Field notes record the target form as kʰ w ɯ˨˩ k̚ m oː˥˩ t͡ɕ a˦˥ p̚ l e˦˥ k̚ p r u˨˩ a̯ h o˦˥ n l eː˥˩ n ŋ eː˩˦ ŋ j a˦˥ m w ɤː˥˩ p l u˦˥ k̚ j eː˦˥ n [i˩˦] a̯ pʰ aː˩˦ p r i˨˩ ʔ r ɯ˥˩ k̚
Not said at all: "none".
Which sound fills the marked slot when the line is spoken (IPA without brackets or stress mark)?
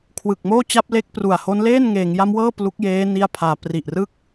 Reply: i˧